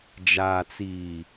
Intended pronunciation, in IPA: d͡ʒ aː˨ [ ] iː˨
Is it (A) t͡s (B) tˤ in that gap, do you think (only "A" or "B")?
A